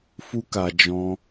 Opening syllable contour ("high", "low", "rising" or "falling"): high